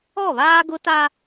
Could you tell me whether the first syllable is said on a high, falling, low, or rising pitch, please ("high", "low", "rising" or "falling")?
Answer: falling